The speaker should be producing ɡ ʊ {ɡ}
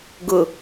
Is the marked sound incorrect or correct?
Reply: incorrect: none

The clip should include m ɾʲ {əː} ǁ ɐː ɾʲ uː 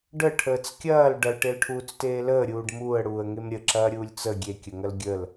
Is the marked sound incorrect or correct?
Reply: incorrect: ə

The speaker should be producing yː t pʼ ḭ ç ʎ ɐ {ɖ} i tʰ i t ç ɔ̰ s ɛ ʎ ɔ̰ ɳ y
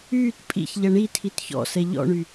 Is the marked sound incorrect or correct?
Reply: incorrect: ɳ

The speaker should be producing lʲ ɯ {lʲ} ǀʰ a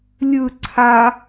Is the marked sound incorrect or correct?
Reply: incorrect: none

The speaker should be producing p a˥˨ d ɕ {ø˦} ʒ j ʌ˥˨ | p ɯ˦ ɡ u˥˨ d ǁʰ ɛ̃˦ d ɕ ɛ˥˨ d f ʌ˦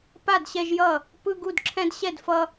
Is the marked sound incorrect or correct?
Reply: incorrect: ɛ˦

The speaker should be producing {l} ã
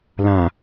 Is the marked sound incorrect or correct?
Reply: correct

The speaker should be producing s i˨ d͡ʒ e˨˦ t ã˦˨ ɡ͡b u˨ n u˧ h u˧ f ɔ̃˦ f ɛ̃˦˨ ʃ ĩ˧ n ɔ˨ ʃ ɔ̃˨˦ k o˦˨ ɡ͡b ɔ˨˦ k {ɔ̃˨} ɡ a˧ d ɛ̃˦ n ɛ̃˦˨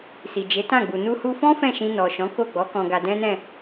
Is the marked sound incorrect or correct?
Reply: incorrect: ɔ̃˧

